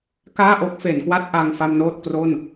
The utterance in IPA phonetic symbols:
k aː˥˩ ʔ o˦˥ k̚ f e˩˦ n k w a˥˩ t̚ ʔ a˧ ŋ f a˧ m n oː˥˩ t̚ k r o˥˩ n

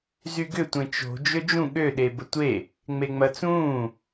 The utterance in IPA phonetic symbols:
z y ɡ ʏ tʷ ẽ t͡ʃ o̤ d͡ʒ ø d͡ʒ ũ ɠ ø ɗ e b ə tʷ e | ŋ͡m e ŋ͡m ɐ t͡s ũː

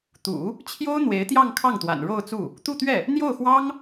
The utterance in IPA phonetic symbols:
t̪ ṵ˨˩˦ | t͡ɕʰ j o˥ ʊ̯ n̪ w e˧˥ ɪ̯ t̪ j ɑ˥˧ ŋ kʰ ɑ˥˩ ŋ t̪ w a̰˨˩ n ɻ o˥˧ ʊ̯ t͡s u˥˩ | t̪ u˥˧ t̪ ɥ ɛ˥˩ | n̪ j o˥˩ ʊ̯ x w ɑ˥ ŋ

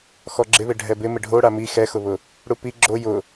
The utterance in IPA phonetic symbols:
x ɔ ɡ͡ǁ ɪ β ɪ ɖʱ ɛ b ɪ m ɪ ɖʱ o ɽ a m i x ɛ x ʊ β ʊ | ɽ u p i ɡ͡ǁ o j ʊ

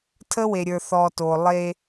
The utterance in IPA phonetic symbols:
tʰ ə˥ w e˨ ɾʲ ə˞˨ θ ɔː˨ t oː˩ lˠ e˨

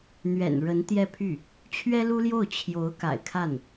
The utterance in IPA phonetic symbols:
n̪ ɥ ɛ̰˨˩ n ɻ ə˧˥ n t̪ j ɛ˥˧ pʰ y˥˩ | t͡ɕʰ ɥ ɛ˥ l u˥ l j o˥˩ ʊ̯ t͡ɕʰ j o˧˥ ʊ̯ k a̰˨˩ ɪ̯ kʰ a˥˩ n

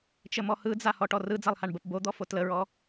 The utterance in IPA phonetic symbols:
t͡ʃ ə m ɔ h ɯ d͡z a h ɔ ʈ ɔ r ɯ d͡z a lˠ h a ɳ b ə p b o d̪ ɔ f o t l ə ɹ ɔ

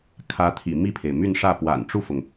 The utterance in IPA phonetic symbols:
kʰ ä˧˥ t̪ʰ ḭ˨˩ m i˥˩ pʰ e˩ ɪ̯ m y˥˧ n ʂ ä˥˩ p w a̰˨˩ n ʈ͡ʂ u˥˩ f ʊ˩ ŋ

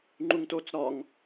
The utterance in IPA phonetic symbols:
ŋ͡ǃ u ŋ t o t͡s ɾ ɒ ŋ

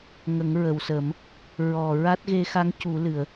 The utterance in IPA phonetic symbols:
ŋ ə˨˩˦ ŋ ɹ ə˨˩˨ w s ə˨˩˦ m | ɹ ɔ˨˩ ɹ a˦˥ t̚ ɣ e˧˥ x a˧˥ ŋ c u˨˩˦ l ɨ˨˩˨ ə̯

